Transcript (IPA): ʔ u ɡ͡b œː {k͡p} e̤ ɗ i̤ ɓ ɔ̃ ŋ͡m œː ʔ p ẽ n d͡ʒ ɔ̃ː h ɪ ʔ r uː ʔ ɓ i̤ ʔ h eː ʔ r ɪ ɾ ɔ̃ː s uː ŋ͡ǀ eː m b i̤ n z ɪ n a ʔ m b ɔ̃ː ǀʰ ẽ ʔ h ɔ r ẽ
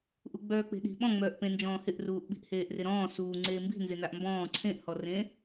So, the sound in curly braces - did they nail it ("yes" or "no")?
yes